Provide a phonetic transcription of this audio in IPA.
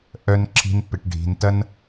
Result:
ʔ œ˥ n ǁʰ i̤˥ n p ɪ˧ ʈ ɖʱ i̤˧ n t ɐ˥ n

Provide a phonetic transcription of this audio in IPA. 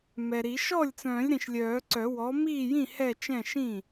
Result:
m ɛ˨ ɾ i˨˩˦ ʃ ɔ˥˩ lʲ t͡s œ̃ː˨˩˦ lʲ ɾ ĩ˨ ʃ lʲ œː˨˩˦ ǀ œ˨˩˦ w ɔ˩˥ m iː˥˩ j ĩ˥˩ h ɛ˥˩ t͡ʃ ɛ̃˥˩ ʃ ĩ˥˩

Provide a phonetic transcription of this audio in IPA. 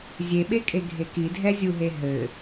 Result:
zʲ e ɓ e kʼ e ɡʱ e k i dʱ ɛ zʲ u ɦ e ɦ ɘ

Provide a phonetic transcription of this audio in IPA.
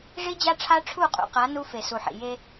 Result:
ʐ i˦ d͡ʑ a˦ ʈ͡ʂʰ a˦ ʈ͡ʂʰ u˦˨ qʼ ṵ˨ q a˨˦ n u˦ f e˨ s u˨ ħ ḭ˨ j e˦

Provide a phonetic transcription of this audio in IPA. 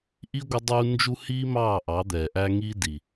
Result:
ʔ i˦ ɡʷ ɪ˦ dˤ uː˦ n d͡ʒ u˦ h iː˦ m ɑː˦˨ ʔ ɑ˨˦ d̪ ɛː˨ ʔ æ˦ ŋ i˦ d i˨

